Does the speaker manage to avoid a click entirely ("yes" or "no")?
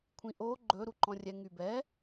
no